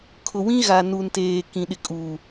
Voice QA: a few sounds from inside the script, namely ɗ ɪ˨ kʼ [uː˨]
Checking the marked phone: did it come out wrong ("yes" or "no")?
no